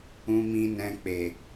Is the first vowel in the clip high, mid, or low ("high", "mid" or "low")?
high